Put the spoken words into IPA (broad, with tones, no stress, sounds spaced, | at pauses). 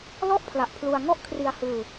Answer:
l ɔ˥˩ ʔ pʰ l a˨˩ ʔ pʰ l u˧ a̯ ŋ ɔ˥˩ ʔ kʰ r i˧ a̯ h ɯː˧